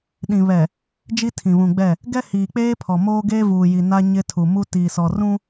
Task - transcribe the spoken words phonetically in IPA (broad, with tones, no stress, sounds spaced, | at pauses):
ɗ ĩ˨ β ɛ˨ | d͡ʒ i˦ tʰ ĩ˨ β ũ˨ ɡ͡b ɛ˦˨ | ɡ ɛ˦ h iː˨ k͡p eː˦ pʰ ɔ˨ m oː˦ ɡ eː˦ v uː˨ j i˨ n a˦ ɲ ɪ˦ tʰ u˨ m u˦ t iː˨ s ɔ˨ r ũ˦